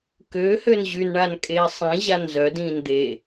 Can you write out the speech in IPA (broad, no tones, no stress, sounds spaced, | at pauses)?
k øː h ø n ʑ y n ɳ a n kʼ eː sˤ ĩ ʑ a n z œ d ĩː n d̪ e